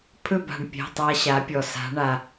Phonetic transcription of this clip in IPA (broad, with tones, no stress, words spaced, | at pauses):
pʰɵ˥˨ba̤˩ɳ pʲɛ̤˩˧˩tˤa˧ ɕa˩˧pʲɔ˩ sa̤˩˧ɳa˩